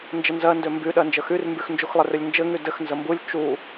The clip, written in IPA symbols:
n d͡ʒ ɘ n z ɜ n d ø m b y ɗ ɜ n d͡ʒ ə x y r m b y x n d͡ʒ u x lˠ ɘ r ø lʲ n d͡ʒ ɘ ŋ y d ɘ x n z ə m b u lʲ t͡ʃ u

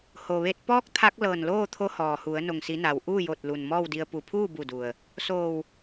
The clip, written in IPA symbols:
h o˩ ʋ e˧ t̚ p ɔː˧˥ k̚ t̪ʰ a˧˥ k̚ l ɤː˧˩ n l oː˥˨ t̪ʰ o˧˥ h ɔː˩ h u˩˧ ə̯ n o˩ ŋ s i˩˧ n a˩ w ʔ uː˥˨ j o˧˩ t̚ l u˩ n m ɔː˥˨ w d i˧ ə̯ p u˧˩ pʰ uː˥˨ b u˧˩ d u˩ ə̯ | s oː˧˩ w

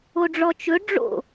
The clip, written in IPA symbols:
o ɖ͡ʐ ɔ t͡ʃ ɵ ɖ͡ʐ o̰

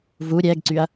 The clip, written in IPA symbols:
v u ɾʲ ɛ ɡ ǀ y ɐ̯

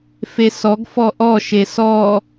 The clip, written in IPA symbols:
f e s ɔ ɡ f ɔ ʔ ɔ ʃ e s ɔ

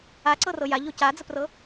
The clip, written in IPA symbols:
a ǀ ɤ r ɤ j a ʎ o c a d͡z ə p r ɤ

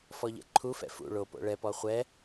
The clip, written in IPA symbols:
f ɔ ʎ ɛ̰ ǃʰ u f ɛ̰ f ṵ ɭ o p o̰ ɭ ɛ p ɔ χʷ ɛ

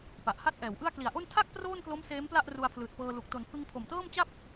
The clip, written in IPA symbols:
p a˨˩ ʔ h a˥˩ t̚ ʔ ɛː˩˦ w ʔ ɯ˥˩ a̯ k l i˩˦ a̯ ʔ o˥˩ n tʰ a˥˩ k̚ p r oː˥˩ n k l o˦˥ m s eː˦˥ m p l a˥˩ ʔ r u˧ a̯ pʰ l ɯː˨˩ t̚ p ɤː˧ l u˨˩ k̚ t o˩˦ n pʰ ɯ˧ ŋ pʰ o˨˩ m t ɤː˥˩ m t͡ɕ a˥˩ p̚

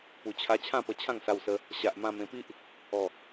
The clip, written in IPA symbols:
p u˨˩ t͡ɕʰ a˧ t͡ɕʰ ã˥˧ p ə˧ t͡ɕʰ ã˥˧ ŋ s a˧ w s ə˧ | ɕ a˨ ʔ m ã˧ m ẽ˧ p i˦ ʔ | ɔ˨˩

